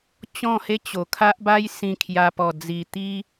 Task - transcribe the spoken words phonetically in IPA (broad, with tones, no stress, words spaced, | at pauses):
t͡ɕɔ̃˥˧he˦t͡ɕo˧ kʰa˦ʔba˦j sĩ˧kʰja˧pɔ˧d͡zi˧ t̪i˦